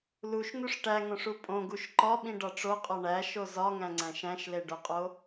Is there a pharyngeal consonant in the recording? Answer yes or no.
no